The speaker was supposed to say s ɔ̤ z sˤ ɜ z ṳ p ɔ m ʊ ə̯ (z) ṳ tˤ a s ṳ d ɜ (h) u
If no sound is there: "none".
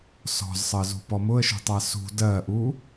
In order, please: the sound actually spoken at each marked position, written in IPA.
ʃ, ʔ

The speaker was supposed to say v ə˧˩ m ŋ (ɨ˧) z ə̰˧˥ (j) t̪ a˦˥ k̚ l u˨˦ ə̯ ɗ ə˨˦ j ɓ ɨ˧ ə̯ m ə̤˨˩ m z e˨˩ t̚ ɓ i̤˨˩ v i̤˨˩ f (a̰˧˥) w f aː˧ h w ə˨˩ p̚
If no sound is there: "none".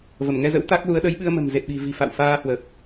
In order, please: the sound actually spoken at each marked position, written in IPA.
ɛ˧, w, a̰˧˨

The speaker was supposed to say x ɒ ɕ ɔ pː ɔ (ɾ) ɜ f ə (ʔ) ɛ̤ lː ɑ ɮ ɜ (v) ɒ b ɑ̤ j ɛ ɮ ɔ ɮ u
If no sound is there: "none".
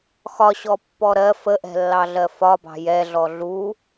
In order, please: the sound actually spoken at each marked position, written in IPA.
ɾ, ʔ, f

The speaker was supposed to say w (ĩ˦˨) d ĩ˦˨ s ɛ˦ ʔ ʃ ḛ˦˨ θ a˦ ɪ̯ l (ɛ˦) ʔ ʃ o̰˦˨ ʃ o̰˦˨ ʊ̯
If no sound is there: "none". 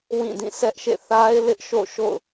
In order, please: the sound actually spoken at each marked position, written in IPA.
ĩ˦˨, ɪ˦

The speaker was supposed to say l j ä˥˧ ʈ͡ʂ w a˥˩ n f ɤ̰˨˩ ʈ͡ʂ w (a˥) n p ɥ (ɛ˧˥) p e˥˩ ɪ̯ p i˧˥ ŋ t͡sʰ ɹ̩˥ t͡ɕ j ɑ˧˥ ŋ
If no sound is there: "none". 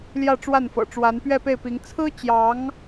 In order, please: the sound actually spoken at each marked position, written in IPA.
a˧˥, ɛ˥˧

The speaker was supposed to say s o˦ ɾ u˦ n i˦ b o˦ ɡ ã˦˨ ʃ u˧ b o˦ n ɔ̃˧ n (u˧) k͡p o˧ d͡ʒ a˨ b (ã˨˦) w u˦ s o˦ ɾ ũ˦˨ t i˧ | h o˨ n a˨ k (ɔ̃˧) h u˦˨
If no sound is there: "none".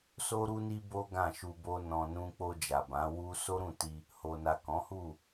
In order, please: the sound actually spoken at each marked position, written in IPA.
ũ˧, ã˨˦, ɔ̃˨˦

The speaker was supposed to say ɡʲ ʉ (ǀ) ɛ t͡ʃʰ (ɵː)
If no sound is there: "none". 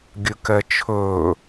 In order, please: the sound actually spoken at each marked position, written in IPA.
k, ɵː

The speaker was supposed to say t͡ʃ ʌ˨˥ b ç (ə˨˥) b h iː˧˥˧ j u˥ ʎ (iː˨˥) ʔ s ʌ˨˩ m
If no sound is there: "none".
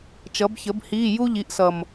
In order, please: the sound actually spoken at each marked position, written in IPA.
ə˨˥, i˨˥

